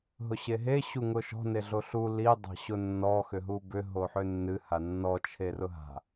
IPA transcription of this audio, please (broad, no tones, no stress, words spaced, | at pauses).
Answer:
ɦʊɕeɦe ɕuŋʊʃɔ̤ neɮoɬu li dˤa̤ɕʊnːɔ xʏɦubʏ ɦoħʏnːɨ hanːɔ t͡ʃʰerʊɦa̤